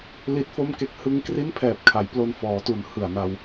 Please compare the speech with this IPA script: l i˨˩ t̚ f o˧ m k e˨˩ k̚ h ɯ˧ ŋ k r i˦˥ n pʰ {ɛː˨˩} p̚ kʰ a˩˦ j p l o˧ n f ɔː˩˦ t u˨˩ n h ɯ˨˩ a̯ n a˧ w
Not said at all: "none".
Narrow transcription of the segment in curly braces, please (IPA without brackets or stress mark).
ɛː˨˩